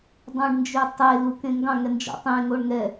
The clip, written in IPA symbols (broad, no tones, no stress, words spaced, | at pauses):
dˤɑ̃ɖnd͡ʒøtˤe lukẽŋɡɑ̃ ŋɛnd͡ʒɔ̰tˤẽ ŋoɳŋɛ